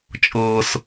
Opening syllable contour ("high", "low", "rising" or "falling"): high